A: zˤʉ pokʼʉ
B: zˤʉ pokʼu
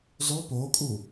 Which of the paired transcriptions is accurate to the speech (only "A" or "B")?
B